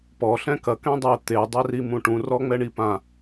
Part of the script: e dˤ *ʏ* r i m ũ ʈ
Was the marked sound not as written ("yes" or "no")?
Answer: yes